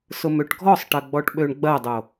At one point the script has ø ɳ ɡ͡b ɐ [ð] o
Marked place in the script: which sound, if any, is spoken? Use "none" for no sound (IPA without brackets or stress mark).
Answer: dˤ